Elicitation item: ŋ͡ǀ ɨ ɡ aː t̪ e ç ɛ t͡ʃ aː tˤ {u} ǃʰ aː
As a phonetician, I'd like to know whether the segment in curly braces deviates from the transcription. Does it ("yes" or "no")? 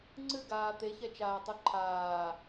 no